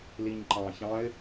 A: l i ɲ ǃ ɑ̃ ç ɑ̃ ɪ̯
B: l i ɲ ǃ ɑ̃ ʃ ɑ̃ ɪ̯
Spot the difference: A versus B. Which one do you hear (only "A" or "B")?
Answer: A